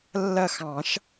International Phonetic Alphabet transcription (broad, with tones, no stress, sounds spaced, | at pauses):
lː ɐ˦˨ x ɑ̃˨˩˦ ʃ